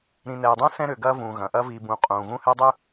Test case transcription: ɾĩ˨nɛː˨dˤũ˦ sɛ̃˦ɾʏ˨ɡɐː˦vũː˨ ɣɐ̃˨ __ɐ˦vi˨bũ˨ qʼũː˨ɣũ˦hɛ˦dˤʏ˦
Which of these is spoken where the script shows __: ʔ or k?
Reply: ʔ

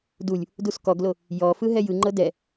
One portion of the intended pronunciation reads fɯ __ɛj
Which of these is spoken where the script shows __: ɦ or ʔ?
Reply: ɦ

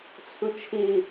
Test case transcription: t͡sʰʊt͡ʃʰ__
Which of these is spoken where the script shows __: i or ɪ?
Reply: ɪ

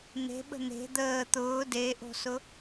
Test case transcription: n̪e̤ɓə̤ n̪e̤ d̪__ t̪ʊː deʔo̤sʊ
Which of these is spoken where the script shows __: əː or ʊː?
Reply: əː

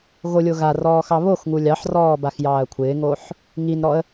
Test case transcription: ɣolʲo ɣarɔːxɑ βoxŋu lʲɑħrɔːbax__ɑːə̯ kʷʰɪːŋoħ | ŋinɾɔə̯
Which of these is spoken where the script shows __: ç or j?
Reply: j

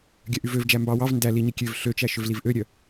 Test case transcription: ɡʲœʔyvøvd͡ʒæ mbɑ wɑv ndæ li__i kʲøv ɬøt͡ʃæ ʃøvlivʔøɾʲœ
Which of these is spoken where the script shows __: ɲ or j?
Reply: ɲ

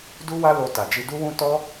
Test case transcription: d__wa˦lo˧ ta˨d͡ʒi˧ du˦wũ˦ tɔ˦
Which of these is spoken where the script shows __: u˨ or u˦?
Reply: u˦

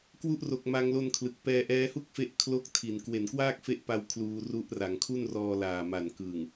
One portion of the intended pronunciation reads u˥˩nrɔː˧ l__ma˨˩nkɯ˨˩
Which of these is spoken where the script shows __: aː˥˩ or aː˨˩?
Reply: aː˨˩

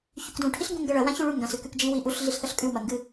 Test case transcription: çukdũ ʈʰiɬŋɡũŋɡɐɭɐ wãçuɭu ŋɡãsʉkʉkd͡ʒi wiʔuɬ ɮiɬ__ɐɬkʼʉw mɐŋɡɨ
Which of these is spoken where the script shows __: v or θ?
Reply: θ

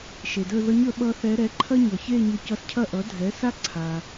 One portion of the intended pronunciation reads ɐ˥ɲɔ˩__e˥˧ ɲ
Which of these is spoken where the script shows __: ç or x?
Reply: ç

